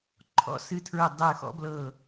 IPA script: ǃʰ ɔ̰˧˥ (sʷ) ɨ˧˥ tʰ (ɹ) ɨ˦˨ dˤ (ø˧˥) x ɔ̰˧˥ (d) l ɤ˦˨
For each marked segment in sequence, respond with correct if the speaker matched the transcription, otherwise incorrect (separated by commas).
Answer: incorrect, correct, incorrect, incorrect